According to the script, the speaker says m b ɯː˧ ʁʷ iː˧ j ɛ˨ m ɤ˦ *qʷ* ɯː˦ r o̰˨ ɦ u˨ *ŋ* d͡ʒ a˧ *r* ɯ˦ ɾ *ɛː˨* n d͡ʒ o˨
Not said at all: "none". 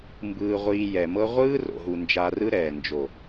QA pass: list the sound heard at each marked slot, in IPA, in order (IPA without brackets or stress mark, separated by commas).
ʁʷ, n, r, ɛː˨